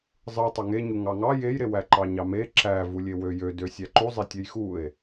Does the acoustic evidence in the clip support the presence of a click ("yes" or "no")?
yes